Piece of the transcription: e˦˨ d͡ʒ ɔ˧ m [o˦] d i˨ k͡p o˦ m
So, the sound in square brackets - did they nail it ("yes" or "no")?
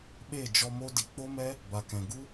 yes